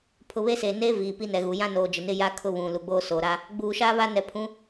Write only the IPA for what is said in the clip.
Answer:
pʰʊ˨βe˦ seː˨ neː˦ viː˨pi˦nɛ˨ɣu˨ jã˦noː˨ d͡ʒɪ˨nɪ˦ja˦ kʰʊ˦βũ˨lu˨ɡ͡boː˦ soː˨ɾa˦ | ɡ͡buː˨ʃaː˦ βa˦nɛ˨pʰũ˨˦

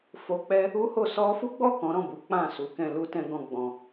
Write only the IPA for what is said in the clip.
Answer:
fo˧k͡pɛ˦ | u˦ho˦˨ sɔ˧fu˦ɡ͡bɔ˦˨ kɔ̃˨˦ɾɔ̃˦˨bu˨˦ k͡pã˦˨ su˨˦kɛ̃˧ lu˧tɛ̃˧ɡɔ̃˧ ɡ͡bɔ̃˧

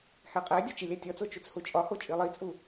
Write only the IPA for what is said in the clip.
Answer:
hæqʼædʲɒ t͡ʃilʲætʲɒt͡so t͡ʃut͡shut͡ʃʼɒho t͡ʃʼilˠit͡sʼu

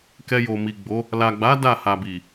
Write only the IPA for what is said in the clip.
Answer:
kɛ˧jo˨ mi˨ɡ͡bo˨˦ | la˨ɡ͡ba˨˦ da˦˨ha˨bi˨

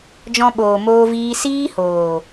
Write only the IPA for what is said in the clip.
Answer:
d͡ʒɔ̃˧ɓoː˨moː˧viː˧ siː˦hoː˨

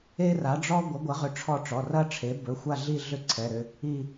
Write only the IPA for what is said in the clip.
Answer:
e˥ra˨˥ɖ͡ʐɔ˥ ɡʷɐ˨˥ɡʷɐ˨˥ʁʏ˨˥ ʈ͡ʂʰɔ˦˨ʈ͡ʂɔ˩˧˩rɐ˥ʈ͡ʂʰe˨˥ bɵ˩˧˩xʷa˦˨ ɮi˦˨ɮʏ˦˨ ǀʰɛ˩˧˩ɾʏ˦˨ | i˦˨

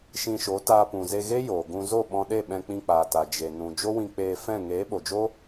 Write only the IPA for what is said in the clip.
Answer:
ʃĩ˧ʃo˨˦taː˧ pũ˨ze˧ɣe˦ joː˨ɡũ˧ zo˦˨ɓɔ̃˧ɗe˦˨ ɓɛ̃˧k͡pĩ˧k͡paː˨ta˨ d͡ʒe˨ nũ˨ d͡ʒo˦wĩ˧k͡peː˧fɛ̃˦˨ ŋeː˨˦ɓo˨d͡ʒo˦

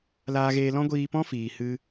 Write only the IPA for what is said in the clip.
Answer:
laː˧ɣeː˧lɔ̃˦ ɡʷiː˧pɔ̃˦fiː˨ hɨ˧

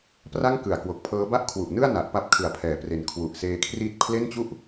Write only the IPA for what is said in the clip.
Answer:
pra˥˩ŋ kɯ˨˩a̯kwo˨˩k̚pʰɤː˦˥ ba˥˩ʔkʰwu˨˩ʔnɯ˥˩a̯ na˨˩ʔpa˦˥p̚ kʰɯ˩˦a̯pʰɛː˩˦pre˨˩n kʰwu˨˩ʔseː˧kʰriː˦˥t̚ pʰle˥˩nt͡ɕu˥˩ʔ

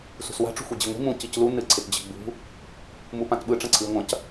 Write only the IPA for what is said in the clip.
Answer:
sṳswa̤ ʈ͡ʂṳxʷid͡ʑiŋʷi̤ mũ ciclu nɨ ǀʰɪtd͡ʑɪɡ͡bṳ | mupãtɓɯ ʈ͡ʂɐ̃ǀʰɨy̯ŋʷɐ̃c

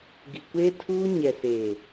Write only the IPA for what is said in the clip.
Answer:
ɡi˨kʷeː˦tʰuː˦ ɲɛ˨seː˨

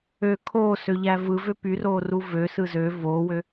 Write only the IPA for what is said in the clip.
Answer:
ø kʰosøʎæ vɯvø pyroːru vøsɯ zø voːwø

